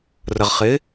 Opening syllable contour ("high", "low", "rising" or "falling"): low